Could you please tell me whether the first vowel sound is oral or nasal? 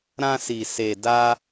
nasal